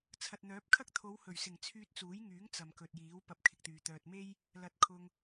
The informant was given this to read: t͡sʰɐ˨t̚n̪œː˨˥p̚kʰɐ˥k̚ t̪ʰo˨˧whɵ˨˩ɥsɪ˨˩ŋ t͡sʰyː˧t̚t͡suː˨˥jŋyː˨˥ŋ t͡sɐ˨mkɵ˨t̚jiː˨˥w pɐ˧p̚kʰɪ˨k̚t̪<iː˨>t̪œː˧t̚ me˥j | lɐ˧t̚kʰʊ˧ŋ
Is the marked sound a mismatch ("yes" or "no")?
yes